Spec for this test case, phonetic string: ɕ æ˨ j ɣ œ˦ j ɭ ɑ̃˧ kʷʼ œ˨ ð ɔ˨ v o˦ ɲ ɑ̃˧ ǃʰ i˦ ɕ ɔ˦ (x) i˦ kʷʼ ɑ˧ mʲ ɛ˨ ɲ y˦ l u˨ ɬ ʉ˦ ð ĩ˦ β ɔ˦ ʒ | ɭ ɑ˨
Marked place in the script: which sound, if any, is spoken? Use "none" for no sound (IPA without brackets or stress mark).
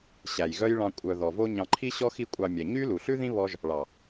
x